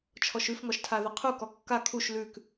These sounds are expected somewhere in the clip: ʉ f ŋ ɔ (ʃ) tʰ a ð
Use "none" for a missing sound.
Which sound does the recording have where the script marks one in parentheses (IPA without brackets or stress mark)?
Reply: ʃ